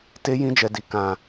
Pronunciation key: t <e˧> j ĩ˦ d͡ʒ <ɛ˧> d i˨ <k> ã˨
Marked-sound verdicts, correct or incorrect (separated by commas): incorrect, correct, correct